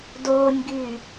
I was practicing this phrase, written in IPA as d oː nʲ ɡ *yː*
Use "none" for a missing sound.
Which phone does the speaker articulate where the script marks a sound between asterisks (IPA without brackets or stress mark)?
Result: yː